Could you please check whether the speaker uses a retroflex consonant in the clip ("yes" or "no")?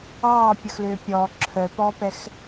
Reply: no